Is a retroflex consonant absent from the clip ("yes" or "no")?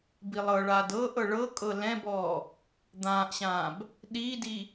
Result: no